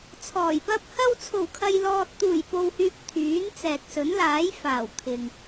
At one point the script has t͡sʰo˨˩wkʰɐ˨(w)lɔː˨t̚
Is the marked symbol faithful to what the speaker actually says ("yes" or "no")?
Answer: no